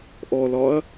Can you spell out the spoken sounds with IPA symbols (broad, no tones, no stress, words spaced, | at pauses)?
ʔɔlɒɐ̯